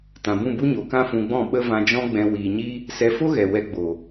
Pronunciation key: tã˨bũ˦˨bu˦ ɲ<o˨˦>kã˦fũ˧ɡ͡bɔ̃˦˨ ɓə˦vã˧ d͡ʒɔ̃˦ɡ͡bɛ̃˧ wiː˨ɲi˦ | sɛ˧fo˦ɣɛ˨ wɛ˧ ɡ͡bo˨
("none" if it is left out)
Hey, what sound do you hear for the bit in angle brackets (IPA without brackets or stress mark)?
o˨˦